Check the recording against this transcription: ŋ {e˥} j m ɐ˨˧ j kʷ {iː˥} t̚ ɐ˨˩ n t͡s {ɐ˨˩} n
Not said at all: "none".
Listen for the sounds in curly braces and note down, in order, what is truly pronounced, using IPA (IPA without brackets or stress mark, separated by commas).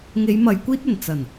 e˨˧, iː˥, ɐ˨˩